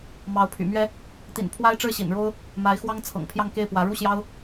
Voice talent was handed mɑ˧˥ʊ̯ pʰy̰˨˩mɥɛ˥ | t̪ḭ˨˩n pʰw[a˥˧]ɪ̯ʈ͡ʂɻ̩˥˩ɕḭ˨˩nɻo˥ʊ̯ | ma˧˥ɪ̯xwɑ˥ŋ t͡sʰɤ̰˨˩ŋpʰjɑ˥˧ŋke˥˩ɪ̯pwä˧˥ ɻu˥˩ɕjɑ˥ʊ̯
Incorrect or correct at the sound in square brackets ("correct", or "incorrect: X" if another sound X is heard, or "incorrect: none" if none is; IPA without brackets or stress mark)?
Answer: incorrect: a˥